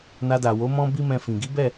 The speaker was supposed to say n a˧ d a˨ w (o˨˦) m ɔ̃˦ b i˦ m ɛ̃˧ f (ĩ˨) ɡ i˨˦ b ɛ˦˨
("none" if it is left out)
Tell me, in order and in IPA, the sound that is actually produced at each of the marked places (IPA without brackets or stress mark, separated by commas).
o˨˦, ĩ˨